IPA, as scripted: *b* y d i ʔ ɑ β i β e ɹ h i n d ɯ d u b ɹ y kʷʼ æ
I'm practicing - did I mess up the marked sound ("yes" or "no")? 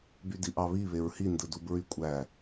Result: no